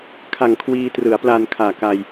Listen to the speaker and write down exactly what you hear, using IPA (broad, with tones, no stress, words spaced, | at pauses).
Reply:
kʰa˨˩ŋ kʰwiː˧ trɯ˩˦a̯pla˧n kʰaː˨˩ka˧j